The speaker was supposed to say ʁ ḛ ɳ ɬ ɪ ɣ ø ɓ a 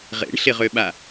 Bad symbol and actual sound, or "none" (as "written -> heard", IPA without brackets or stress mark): ɣ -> ʁ